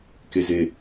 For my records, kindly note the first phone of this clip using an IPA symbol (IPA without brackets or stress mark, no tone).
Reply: k